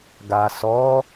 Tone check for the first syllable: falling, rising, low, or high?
low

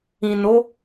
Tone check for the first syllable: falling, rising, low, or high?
low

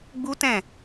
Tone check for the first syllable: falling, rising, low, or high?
high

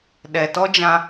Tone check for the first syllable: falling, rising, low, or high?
low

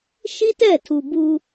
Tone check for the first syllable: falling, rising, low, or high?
high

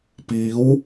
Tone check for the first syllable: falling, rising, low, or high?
rising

